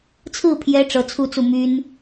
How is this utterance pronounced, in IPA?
t͡sʰ ɹ̩˥˩ pʰ j ɛ˧˥ ʈ͡ʂ ɤ˧˥ t͡sʰ u˥˧ t͡s u˥˩ m y˥ n

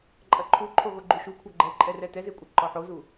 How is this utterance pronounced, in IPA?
ǃʼ ɐ ǃʰ u ǃʰ o ɣ o ɡ͡ǃ u ʃ u kʷʰ ʌ ɡ͡ǃ ɛ ǃʼ ɛ r ɛ t ɛ z e kʷʼ ɐ ǃ ɔ ħ o z u

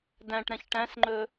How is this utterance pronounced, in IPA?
d æ̃ ʈ ɾ ɛ̃ ç ʈ æ̃ s ŋ͡ǃ ɵ

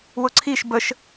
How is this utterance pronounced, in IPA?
w ʊ ǀʰ i ʃ b ə ʃ

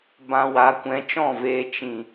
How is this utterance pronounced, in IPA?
b ã˧ w a˨˦ kʷ ɛ̃˨˦ t͡ʃ ɔ̃˦˨ v eː˧ t͡ʃ ĩ˨

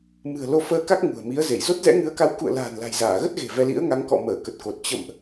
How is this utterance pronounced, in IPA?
m ɨ̤˨˩ ə̯ l o˧ f əː˧ k a˦˥ k̚ ŋ ṳ˨˩ ə̯ m i˨˦ ə̯ z e˧˩ j z o˦˥ t̚ z ɛ̰˧˥ ŋ ɨ˨˦ ə̯ k a˨˦ w k ṵ˧˨ ə̯ l a̤ː˨˩ n l a̤˨˩ j z aː˧˩ ɣ ə˦˥ t̚ ɣ e̤˨˩ v ɛ˧ l ḭ˧˥ ə̯ ŋ a˨˦ ŋ k ɔ̰˧˨ m əː˧˩ k ə˨˩ t̚ k o˨˩ t̚ t͡ɕ ə̰˧˨ m ʔ

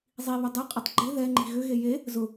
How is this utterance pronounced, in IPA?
zˤ i β ʏ dˤ e qʼ ɪ tˤ ɡ͡ǃ ɪ ð ɛ ŋ͡ǃ i̤ ɣ ʏ ɣ e j e | z ʊ

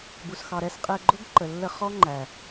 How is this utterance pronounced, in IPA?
b u˨ s x ɑ˨ ɾ ɛ˧ s qʼ ɛ˧ ɡ͡ǃ ʊ˦ ɡ ǃ ə˨ lː ə˧ χ ɔ˦ ŋ͡ǃ æ˨

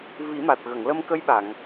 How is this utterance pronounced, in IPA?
v i˨˩˦ m a˨˩ t̚ ɣ ə˨˩˨ ŋ l ə˧ m k ə˧˥ j ɓ a˨˩˨ ŋ

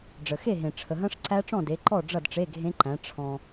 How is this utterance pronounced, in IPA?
ɖ͡ʐ ə˨ x e˥˨ ɦ ẽ˨ ʈ͡ʂʰ ə˨ ɦ ɐ̃˦˥ ʂ ǀ æ˦˥ ʈ͡ʂ ɔ̃˥˨ d e˨˦ ǃ ɔ˥˨ ɖ͡ʐ ʌ˥˨ d ʈ͡ʂ e˧˥˧ ɡʱ ẽ˦˥ ǃ æ̃˨˦ ʈ͡ʂʰ ɔ̃˨

